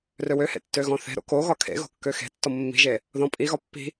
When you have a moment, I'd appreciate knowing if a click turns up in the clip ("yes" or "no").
no